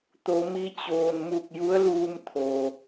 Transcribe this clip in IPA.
t̪ o˩˧ m i˧ t͡ɕ oː˩ n m u˧˩ k̚ j u˧˥ ə̯ l uː˧ m t̪ʰ o˩

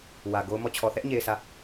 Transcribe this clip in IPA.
w ä˨ ɡ o˦ ʊ̯ m ɔ˦˨ t͡ɕʰ ɔ˨ θ ɛ˦ ʔ ɲ e˨ ɪ̯ sʰ ä˦˨

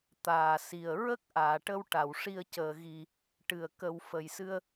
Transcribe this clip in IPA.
t̪ aː˨˩ s i˨˩ ə̯ ɹ ə˦˥ k̚ ʔ aː˨˩˨ ʈ ə˧ w ʈ a˨˩˨ w ʂ i˧ ə̯ c əː˨˩ ɣ i˨˩ | ʈ ɨ˨˩ ə̯ k ə˧ w f ə˨˩ j s ɨ˧ ə̯

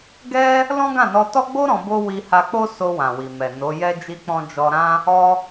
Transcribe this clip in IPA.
ɡ ɛ˦ | l ɔ̃˦ ɡ ã˦˨ n ɔ˧ t ɔ˦ ɡ͡b o˦ ɾ ɔ̃˧ b o˦ w i˧ h a˧ k͡p o˦ s o˧ w ã˨ w i˨ m ɛ˨ n o˨˦ j ɛ˦ d͡ʒ i˦ k͡p ɔ̃˦ d͡ʒ ɔ˧ ɾ ã˦ | ɔ˦

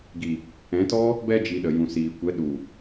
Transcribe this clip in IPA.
ɡ i˨ | ɛ̃˨˦ t ɔ˦ | b ɛ˧ d͡ʒ i˨ ɗ ə˨ j ũ˨ s iː˨ kʷ ɛ˨˦ ɗ u˨

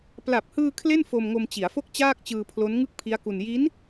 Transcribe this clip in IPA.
p l a˨˩ p̚ h ɯː˧ kʰ l e˥˩ n f o˧ m ŋ o˧ m t͡ɕ i˩˦ a̯ f o˥˩ k̚ t͡ɕ aː˥˩ k̚ t͡ɕ ɯː˧ pʰ l o˦˥ n ŋ ɯ˥˩ k̚ pʰ i˦˥ a̯ k u˧ n j i˦˥ n

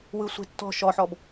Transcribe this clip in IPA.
w ɯ sʷ e̤ tː ɔ̤ ʃ ɔ ħ ɔ b

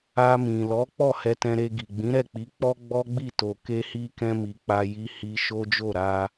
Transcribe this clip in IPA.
a˧ m ĩ˨ l ɔ˨˦ k͡p ɔ˦˨ h ɛ˧ t ɛ̃˧ ɾ e˧ ɡ i˨ ɡ͡b ĩ˨˦ ɾ ɛ˦˨ k͡p i˨˦ k͡p ɔ˦ ɡ͡b ɔ˦ ɡ͡b i˦˨ t o˨ k e˧ h i˧ k ɛ̃˧ m i˨ k͡p a˧ j i˧ h i˧ ʃ o˦ d͡ʒ o˦˨ ɾ a˧

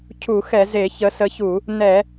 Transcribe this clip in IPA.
cʰ u˧˩˧ x ɛ˧˩˧ z e˧˩˧ ç ə˨˦ s ə˨˦ ç u˧˩˧ | n ɛ˧˩˧

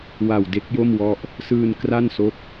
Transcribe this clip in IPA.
w a˨˩ w d e˦˥ k̚ j o˥˩ m w ɔ˦˥ ʔ | s ɯː˧ n k r a˥˩ n s o˦˥ k̚

